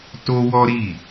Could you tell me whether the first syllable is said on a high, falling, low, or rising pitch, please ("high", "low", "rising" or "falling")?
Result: high